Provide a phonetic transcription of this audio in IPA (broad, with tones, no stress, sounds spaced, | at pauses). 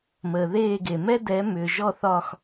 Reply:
m əː˩ ð eː˥˩ ɡ e˩ m ɛ˥ d ɛ˩˥ m ʏː˩ ʒ ɔ˥˩ θ ɒ˥˩ x